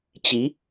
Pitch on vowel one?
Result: rising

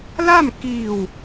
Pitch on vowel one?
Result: falling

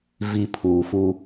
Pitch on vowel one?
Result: low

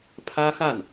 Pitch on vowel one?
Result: high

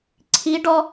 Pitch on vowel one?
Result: rising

